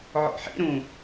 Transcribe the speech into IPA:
ʕ ɔ̰ ħ ḭ ɾ ũ

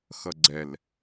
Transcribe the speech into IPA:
x ʌ ɡ͡ǀ ɛ l

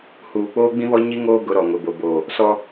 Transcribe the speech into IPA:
h uː˨ k͡p oː˦ ɡ͡b ĩ˦ β ɔ˦ ɲ i˦ ŋ oː˦ ɡ ʊ˨˦ ɾ ɔ˨ ŋ ʊ˨ b o˨ b oː˨ | s ɔ˦

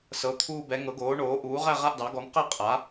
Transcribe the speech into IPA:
s ɤ˩˥ t̪ʰ uː˥˨ b ɛ˩˥ ŋ ɤ˩˥ ɡ oː˩˥ ɳ oː˩˥ ʔ uː˩˥ ʁ æ˥˨ ʁ a˥˨ ʔ d ɑ˩˥ ɡ ɔ˩˥ ŋ q ɛ˥˨ qʼ a˩˥

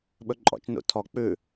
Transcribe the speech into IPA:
ɓ ɵ ǃʼ ɔ̰ t͡ʃ n ṵ tʰ ɔ k͡p ʉ

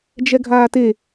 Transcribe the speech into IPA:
d͡ʒ ɛ ɡʱ aː t e

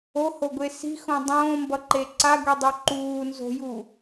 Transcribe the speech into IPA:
o h o ɡʷ e s i̤ x õ dˤ õː m b ʌ ǃ e ǀ a ɡʷ i dˤ u ǃ uː n z o̤ j u

